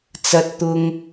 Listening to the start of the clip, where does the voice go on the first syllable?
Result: high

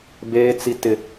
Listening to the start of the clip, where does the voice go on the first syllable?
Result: high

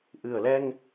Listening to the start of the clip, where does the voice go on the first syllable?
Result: low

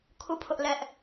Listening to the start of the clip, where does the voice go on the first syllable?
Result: falling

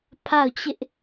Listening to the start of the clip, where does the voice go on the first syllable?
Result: falling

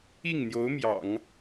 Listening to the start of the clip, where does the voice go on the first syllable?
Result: falling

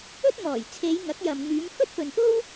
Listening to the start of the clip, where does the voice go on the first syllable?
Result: high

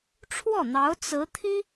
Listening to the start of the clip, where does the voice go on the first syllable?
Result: falling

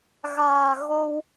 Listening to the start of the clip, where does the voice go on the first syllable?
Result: low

